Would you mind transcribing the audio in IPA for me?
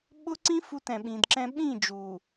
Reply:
ɓʊ˦ǀĩ˦ fu˦˨tɛ̃˨ɓĩ˨dǁɛ̃˦ ɓĩ˦˨d͡ʒu˨

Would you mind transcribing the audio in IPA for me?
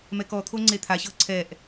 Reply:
mɛkɔt̪ʰo ŋ͡ǀet̪ʰaɕɤ ǀʰɛʔ

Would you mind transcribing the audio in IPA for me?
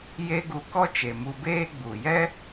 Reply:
je˦ɡu˧kɔ˦ t͡ʃe˨mu˧beː˦ ɡ͡bu˨jɛ˦

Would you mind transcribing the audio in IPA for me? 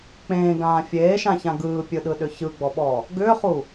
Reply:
k͡pẽːɡãː fʲeːʃãçã ɡɯːpʲɯɗɯɗʏ çɯɡ͡bɔɓɔ | ɡʏːχu

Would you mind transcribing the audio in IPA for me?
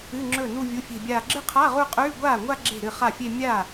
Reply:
ɨ˧˥˧ŋ͡ǁɵ˥˩nu˥˧ vʲu˧˥˧fʲe̤˥˧bʲaː˥˧ ɡ͡ǁɨ˥˧qʰa˧˥˧ ʁu˥˧qʼʉː˧˥˧ ɡʷaː˥˩ŋʷa˥˧ ɡ͡ǁe̤˥˩ɾɨ˥˩χa˥˩fʲe˥˧ mʲa˥˩

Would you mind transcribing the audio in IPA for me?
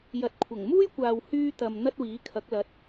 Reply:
jɐ˨t̚kʷʰɐ˨˩ŋmuː˥jkʷaː˨w hyː˧t̪ɐ˨m n̪ɐ˥t̚wiː˨˥kʰɐ˨˥k̚lɐ˨˥t̚

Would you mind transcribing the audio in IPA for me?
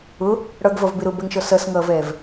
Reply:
ʊ | ɽʌɡvʌvbɪ ɾʊbɛŋʃɔ sʌsŋʌːvɛːv

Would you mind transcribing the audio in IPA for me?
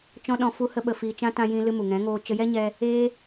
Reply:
t͡ʃɔ̃˦ɗɔ̃˧ fu˦hə˦ ɓə˧ fiː˧t͡ʃã˦ tã˦jĩ˦lɨ˦ mu˨ŋɛ̃˨˦ŋoː˧ t͡ʃə˧jɛ˦ɲɛ˧ | eː˦

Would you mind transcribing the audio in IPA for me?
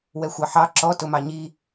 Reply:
wɛxʷɑħɑ ǁɔ tʊmɑɲi

